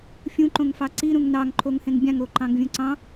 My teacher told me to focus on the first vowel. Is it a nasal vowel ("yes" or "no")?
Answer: yes